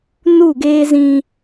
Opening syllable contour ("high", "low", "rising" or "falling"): falling